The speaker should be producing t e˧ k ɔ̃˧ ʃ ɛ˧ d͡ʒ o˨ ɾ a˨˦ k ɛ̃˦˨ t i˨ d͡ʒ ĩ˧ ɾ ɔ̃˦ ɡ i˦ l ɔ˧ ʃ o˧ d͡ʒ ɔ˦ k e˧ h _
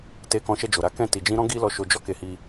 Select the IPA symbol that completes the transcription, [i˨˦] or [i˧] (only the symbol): i˧